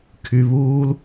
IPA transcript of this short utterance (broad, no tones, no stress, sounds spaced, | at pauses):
kʰ y β uː l